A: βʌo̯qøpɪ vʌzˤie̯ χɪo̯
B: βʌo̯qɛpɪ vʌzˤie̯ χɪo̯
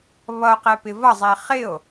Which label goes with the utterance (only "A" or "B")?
B